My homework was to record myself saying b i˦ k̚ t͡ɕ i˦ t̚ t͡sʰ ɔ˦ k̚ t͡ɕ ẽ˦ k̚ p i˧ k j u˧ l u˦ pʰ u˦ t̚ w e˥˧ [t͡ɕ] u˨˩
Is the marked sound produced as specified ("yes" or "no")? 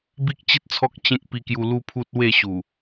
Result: no